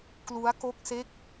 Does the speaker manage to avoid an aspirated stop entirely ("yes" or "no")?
yes